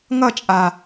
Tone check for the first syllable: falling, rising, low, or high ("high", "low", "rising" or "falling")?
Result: falling